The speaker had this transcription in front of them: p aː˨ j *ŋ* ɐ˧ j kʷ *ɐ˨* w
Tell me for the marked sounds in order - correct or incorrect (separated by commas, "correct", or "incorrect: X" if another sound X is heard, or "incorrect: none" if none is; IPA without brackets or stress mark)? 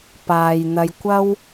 incorrect: n̪, incorrect: ɐ˥